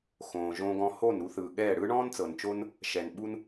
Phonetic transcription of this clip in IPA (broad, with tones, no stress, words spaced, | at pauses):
xõː˨ʒõː˧ɡɔ̃˧ ho˦˨nɾu˧θɯː˨ ɠɛː˦˨ ɽɯ˦ɳɔ̃ː˦nt͡sɤ˨nt͡ʃo˦n | ʃɛ˨nɓu˦n